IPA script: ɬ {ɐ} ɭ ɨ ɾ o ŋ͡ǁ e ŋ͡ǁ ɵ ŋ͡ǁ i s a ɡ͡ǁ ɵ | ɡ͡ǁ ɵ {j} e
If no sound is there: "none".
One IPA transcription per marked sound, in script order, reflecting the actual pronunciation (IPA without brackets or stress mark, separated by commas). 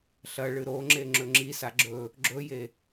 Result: ɐ, j